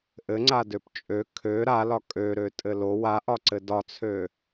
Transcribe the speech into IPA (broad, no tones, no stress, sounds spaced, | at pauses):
ʔ ɘ ŋ͡ǀ a d ø p t͡ʃʼ ø kʰ ø ɾ a l ɒ kʼ ø ɾ ø tʼ ɘ l o w a ʔ ɒ ǀ ɘ d ɒ t͡sʰ ø